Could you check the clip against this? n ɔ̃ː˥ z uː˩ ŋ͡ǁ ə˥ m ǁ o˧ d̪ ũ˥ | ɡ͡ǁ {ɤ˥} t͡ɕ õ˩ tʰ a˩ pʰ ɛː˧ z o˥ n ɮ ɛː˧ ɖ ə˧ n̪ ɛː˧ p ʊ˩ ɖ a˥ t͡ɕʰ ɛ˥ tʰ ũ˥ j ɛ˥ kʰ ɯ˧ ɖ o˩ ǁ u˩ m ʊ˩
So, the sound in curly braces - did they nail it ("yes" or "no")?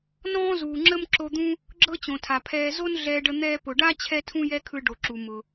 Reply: yes